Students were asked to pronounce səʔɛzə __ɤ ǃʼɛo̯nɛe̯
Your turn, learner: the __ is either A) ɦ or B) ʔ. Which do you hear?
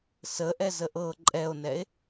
B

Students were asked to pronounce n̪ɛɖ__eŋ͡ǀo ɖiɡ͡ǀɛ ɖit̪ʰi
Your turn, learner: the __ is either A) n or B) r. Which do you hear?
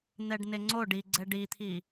A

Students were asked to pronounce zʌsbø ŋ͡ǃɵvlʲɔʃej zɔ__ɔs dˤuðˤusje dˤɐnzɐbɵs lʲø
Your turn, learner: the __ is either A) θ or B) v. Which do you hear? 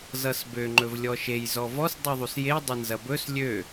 B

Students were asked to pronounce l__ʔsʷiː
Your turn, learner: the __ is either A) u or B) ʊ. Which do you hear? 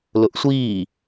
B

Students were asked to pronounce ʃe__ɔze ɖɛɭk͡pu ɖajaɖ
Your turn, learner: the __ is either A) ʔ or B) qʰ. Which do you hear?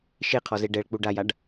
B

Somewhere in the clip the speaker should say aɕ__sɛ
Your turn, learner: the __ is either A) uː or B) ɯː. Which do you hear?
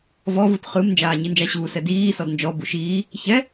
A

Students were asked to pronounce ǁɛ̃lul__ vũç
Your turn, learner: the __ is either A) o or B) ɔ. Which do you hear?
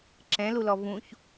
B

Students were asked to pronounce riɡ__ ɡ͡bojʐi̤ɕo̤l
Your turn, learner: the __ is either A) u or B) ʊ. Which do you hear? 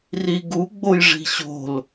A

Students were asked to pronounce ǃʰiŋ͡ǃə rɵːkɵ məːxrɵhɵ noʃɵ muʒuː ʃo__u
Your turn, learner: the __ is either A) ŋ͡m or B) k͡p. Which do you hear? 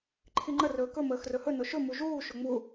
A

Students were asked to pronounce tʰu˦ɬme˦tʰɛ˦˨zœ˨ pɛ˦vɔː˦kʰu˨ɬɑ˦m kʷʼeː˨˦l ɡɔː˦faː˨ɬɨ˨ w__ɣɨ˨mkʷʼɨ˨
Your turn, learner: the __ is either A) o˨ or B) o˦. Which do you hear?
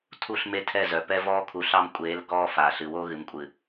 B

